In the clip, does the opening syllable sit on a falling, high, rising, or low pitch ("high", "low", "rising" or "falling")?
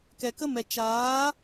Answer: low